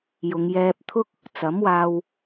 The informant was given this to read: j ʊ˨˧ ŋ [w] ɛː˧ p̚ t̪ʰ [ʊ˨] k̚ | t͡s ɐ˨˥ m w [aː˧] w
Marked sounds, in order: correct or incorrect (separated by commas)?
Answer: incorrect, incorrect, correct